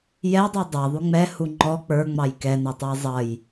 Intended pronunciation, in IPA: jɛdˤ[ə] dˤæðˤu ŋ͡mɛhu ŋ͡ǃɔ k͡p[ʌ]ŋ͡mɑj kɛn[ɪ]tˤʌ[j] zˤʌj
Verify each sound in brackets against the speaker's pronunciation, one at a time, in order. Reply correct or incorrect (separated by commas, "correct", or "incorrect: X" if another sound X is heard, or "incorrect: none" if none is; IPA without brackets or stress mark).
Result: incorrect: ə˞, incorrect: ə˞, incorrect: ɛ, correct